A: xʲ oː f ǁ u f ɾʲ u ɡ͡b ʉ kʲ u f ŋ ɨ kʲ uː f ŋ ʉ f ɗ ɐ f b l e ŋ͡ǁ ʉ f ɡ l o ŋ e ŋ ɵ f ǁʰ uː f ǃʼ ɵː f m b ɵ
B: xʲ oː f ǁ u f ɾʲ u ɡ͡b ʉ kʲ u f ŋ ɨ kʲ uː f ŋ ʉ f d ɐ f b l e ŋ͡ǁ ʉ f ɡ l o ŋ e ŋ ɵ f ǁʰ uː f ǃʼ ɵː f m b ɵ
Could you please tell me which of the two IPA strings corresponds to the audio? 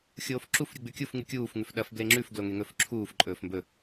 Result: A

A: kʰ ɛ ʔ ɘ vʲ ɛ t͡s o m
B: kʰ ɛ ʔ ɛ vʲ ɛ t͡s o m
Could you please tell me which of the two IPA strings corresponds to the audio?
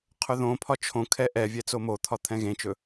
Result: B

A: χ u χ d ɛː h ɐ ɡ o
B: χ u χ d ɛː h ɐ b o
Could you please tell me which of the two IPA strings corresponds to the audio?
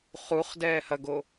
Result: A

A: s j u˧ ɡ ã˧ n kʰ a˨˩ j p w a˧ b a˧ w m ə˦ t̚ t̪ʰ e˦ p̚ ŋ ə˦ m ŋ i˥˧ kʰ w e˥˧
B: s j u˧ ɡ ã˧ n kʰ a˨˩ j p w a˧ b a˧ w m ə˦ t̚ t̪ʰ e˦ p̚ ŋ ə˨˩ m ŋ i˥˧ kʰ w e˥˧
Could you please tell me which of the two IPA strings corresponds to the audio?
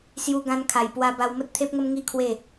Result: A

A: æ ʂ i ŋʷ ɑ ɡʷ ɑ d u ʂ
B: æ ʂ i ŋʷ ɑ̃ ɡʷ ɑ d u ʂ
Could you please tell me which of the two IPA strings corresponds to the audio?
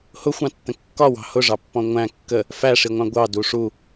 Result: B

